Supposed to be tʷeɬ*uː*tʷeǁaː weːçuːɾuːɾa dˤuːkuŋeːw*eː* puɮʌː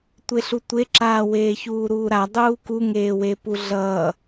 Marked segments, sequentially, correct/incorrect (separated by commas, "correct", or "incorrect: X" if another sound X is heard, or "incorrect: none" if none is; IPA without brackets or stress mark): incorrect: u, incorrect: e